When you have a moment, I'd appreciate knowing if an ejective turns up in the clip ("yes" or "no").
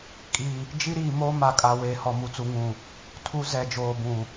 yes